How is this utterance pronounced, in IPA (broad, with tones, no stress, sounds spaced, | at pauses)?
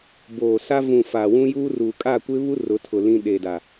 b oː˨ s a˦ v ũ˨ f aː˨ w ũ˦ j uː˦ r uː˨ kʼ a˦˨ kʷ ɪ˦ β u˦ r ʊ˨˦ tʰ ʊ˨ l ĩ˦ ɗ e˨ d a˨